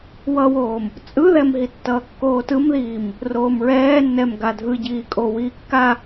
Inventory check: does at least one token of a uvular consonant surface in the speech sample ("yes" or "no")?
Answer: no